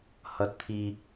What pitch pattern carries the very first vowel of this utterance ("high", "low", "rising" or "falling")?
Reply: low